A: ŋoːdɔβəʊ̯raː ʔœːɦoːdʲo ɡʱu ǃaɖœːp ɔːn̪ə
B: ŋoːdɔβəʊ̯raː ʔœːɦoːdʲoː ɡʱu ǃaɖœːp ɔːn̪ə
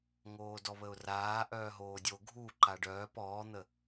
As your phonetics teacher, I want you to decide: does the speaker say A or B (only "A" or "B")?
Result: A